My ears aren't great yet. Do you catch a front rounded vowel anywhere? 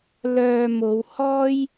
yes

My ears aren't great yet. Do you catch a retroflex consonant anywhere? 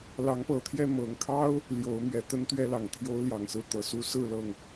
no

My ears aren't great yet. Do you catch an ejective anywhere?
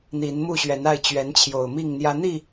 no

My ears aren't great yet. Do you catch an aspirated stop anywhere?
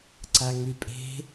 no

